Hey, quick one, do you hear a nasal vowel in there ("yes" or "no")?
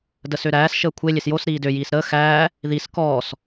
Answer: no